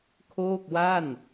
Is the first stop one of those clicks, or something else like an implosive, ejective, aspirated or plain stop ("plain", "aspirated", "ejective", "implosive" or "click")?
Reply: aspirated